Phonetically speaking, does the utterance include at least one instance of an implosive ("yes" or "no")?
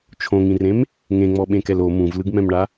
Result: yes